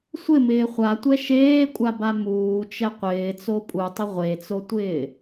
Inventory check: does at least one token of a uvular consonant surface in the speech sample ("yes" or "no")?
yes